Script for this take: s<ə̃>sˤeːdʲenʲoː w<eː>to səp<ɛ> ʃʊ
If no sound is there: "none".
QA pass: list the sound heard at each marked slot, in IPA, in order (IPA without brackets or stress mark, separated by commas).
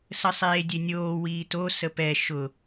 ə, iː, ɛ